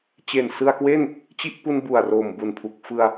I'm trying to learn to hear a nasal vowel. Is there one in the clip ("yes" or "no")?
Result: no